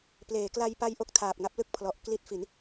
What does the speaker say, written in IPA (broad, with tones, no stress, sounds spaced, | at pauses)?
p l eː˩˦ k l a˧ j p a˧ j ʔ o˥˩ k̚ tʰ aː˨˩ p̚ ŋ a˦˥ p̚ l ɯ˥˩ k̚ pʰ l ɔ˨˩ ʔ k l i˦˥ t̚ f i˩˦ n